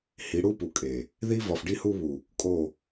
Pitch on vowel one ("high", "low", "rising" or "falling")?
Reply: rising